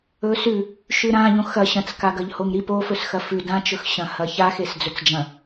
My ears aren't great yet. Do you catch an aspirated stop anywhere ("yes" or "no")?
no